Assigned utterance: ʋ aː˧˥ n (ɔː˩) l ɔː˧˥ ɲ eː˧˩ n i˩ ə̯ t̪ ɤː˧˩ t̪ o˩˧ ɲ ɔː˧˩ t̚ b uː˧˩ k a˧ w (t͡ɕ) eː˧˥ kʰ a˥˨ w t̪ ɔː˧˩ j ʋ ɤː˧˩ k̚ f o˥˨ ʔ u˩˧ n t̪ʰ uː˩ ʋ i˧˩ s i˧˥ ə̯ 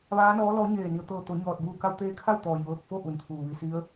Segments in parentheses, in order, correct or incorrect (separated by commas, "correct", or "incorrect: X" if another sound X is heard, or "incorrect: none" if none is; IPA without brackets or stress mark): incorrect: ɔː˧˥, incorrect: t̪